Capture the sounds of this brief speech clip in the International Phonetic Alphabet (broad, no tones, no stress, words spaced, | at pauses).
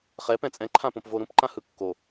χɛ pɛ̃t͡sʼɛ̃ǃʰãpõp voɾũpǃãhɯ kːo